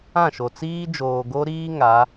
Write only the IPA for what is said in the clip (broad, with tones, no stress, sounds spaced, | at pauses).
ã˦˨ ʃ o˨ t͡s iː˦ d͡ʒ oː˨ ɡ o˦ ɾ iː˦ ŋ a˨˦